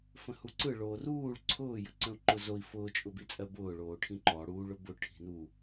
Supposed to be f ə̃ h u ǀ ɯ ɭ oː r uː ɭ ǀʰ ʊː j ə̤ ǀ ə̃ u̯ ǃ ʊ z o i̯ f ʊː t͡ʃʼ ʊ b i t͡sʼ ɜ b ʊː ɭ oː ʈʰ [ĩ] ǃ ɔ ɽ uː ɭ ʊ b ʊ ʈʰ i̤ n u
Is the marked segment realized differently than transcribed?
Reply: no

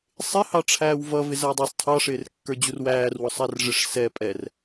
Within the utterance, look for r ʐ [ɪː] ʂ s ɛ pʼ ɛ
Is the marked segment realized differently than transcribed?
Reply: yes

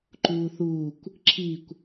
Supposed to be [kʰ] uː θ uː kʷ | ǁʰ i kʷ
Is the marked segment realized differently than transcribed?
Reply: yes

